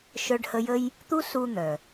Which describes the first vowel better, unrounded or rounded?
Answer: rounded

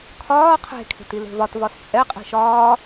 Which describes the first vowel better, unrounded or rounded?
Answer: rounded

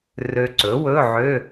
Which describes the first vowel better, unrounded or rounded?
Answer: rounded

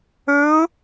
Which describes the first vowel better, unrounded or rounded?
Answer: rounded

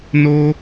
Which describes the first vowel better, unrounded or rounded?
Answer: rounded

